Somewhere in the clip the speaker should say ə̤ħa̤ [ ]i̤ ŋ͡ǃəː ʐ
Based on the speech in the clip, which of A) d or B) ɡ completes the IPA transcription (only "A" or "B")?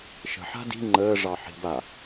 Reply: A